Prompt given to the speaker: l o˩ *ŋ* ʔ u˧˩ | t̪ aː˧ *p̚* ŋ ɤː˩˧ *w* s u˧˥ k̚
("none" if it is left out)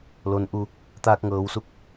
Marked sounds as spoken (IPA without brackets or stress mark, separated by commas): n, k̚, w